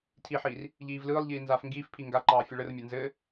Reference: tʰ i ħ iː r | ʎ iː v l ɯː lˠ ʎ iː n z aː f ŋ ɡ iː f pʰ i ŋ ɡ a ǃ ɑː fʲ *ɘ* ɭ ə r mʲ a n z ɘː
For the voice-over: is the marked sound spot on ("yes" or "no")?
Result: yes